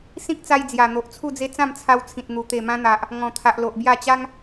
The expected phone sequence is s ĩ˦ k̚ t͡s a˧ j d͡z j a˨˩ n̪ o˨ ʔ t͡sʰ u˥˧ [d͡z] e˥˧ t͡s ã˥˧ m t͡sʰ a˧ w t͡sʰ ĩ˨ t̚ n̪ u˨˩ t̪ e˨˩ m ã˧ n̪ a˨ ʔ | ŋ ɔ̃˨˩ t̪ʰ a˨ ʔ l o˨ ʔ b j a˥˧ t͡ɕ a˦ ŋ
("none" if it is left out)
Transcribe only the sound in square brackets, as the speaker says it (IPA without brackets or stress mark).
d͡z